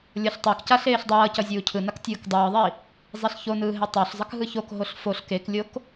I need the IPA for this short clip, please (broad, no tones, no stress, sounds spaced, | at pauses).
lʲ ʌ ɬ tˤ e k c a ɬ eː ɬ dˤ ʌː c ʌ zʲ uː cʰ ɯ n a k tʲ ɯː k dˤ ɯː ðˤ i | zˤ i ɬ ç o n ɯː ɦ e tˤ o ɬ zˤ ʌ k ɦ ɯ ç o k ɦ o ɬ f o ɬ k e k lʲ o k